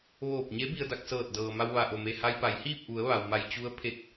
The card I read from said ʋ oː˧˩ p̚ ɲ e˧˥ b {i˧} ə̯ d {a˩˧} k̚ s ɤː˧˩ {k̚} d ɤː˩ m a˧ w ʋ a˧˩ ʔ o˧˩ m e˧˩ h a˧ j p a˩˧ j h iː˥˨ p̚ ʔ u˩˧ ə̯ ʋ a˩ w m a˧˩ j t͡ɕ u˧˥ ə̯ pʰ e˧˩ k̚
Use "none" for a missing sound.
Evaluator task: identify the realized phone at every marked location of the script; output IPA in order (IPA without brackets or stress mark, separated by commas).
i˧, a˧, t̚